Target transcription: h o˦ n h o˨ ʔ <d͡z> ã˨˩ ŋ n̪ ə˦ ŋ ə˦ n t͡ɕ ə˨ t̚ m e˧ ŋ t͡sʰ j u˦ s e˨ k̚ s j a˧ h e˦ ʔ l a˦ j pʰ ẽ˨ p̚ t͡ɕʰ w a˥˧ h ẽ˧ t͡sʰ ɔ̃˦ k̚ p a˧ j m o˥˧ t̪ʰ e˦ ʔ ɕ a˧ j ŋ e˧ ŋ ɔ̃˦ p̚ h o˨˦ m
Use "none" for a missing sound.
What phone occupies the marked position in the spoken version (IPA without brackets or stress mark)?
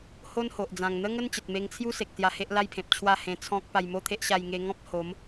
d͡z